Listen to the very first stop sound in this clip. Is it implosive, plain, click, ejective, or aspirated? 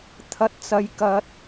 aspirated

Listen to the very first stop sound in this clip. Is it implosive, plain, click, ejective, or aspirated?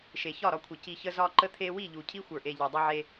aspirated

